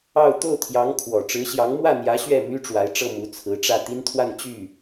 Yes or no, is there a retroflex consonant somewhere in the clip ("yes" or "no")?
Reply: yes